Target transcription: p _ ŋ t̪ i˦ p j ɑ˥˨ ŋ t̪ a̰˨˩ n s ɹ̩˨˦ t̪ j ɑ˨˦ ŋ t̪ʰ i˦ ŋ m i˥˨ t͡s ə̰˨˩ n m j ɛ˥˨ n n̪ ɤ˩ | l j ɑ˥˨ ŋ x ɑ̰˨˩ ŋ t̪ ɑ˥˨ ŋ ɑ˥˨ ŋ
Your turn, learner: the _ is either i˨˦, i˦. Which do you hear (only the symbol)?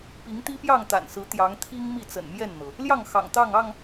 i˨˦